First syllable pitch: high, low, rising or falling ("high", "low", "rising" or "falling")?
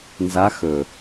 rising